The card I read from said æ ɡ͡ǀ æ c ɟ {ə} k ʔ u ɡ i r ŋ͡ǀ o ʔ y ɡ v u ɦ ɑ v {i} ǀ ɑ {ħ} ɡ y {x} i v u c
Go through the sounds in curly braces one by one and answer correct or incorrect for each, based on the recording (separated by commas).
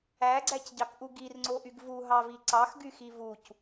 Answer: incorrect, correct, incorrect, correct